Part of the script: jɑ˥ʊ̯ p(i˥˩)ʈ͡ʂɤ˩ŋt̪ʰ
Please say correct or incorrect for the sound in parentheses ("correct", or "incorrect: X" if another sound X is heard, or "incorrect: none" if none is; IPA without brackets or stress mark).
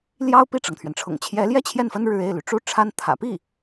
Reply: correct